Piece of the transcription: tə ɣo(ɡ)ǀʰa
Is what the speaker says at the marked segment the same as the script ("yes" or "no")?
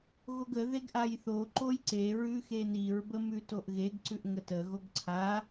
yes